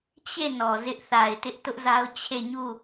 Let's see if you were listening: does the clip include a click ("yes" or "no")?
no